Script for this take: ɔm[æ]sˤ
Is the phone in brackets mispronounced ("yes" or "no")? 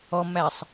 no